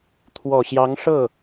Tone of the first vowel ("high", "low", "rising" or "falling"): low